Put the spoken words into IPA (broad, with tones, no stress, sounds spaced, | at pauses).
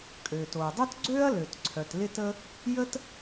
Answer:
kʼ øː˩ t oː˩ dˤ œ˥ t ɡ͡ǀ øː˥ ɐ̯ l ø˩ t ǀʰ œ˩ t l ɪ˥ t ə˥ | j ə˥ t